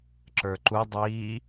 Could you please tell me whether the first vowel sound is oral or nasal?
oral